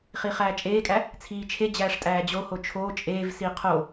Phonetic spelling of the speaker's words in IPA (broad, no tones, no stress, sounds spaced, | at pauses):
χ i χ æː t͡ʃʼ eː kʼ æ | t͡sʰ iː t͡ʃʰ e d͡ʑ æː ʂ tʼ æː d͡ʑ o h o t͡ʃʰ oː t͡ʃʼ eː v s i qʰ o